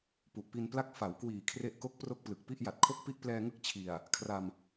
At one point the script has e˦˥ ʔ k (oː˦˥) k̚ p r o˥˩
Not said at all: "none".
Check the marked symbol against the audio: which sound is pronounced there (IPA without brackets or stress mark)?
o˦˥